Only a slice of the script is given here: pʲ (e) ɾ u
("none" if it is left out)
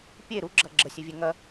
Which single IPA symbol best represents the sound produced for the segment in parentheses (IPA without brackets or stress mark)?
e